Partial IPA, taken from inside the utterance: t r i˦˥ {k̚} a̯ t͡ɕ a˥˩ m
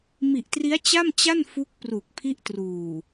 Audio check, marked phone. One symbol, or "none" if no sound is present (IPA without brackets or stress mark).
none